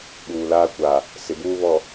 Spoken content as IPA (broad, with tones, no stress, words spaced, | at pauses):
ɓuː˨laː˦kʷaː˨ | sɪ˨ buː˦ βɔ˨